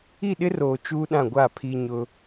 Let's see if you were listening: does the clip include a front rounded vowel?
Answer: no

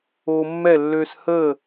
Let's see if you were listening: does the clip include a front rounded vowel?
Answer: yes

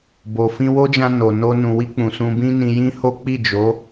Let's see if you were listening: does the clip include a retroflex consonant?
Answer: no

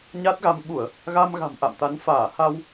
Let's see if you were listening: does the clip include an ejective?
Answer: no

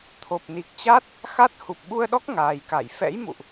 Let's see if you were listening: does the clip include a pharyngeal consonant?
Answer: no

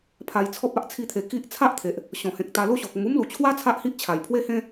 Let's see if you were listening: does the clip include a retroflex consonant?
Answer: no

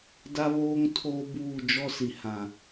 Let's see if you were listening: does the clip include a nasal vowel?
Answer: yes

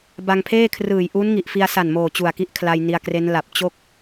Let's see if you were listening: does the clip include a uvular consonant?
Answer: no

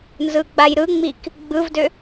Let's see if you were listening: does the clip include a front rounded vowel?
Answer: yes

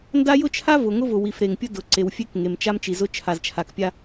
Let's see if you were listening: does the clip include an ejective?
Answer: no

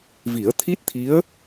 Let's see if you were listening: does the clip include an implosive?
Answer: no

